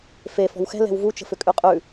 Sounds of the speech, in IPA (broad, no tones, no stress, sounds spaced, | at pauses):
f e f ɔ̤ w x ɛ̤ l ɛ̤ w v u t͡ʃ ə̤ f ʏ kʼ ʉ qʼ ʉ